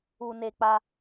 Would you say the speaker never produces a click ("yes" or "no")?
yes